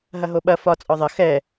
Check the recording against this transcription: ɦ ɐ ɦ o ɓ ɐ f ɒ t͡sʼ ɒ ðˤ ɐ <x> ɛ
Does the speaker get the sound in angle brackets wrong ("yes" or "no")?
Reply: no